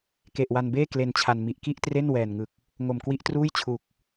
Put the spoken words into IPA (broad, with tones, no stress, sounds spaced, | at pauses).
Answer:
k e˨˩ ʔ w a˧ n b eː˥˩ k l e˧ n t͡ɕʰ a˧ n m i˨˩ ʔ k i˥˩ ʔ t r e˥˩ n w ɛː˨˩ n ŋ ɯ˨˩ k̚ | ŋ o˨˩ m k w i˦˥ ʔ t r uː˥˩ j t͡ɕʰ u˨˩ k̚